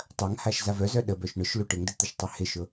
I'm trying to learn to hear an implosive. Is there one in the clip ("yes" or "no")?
yes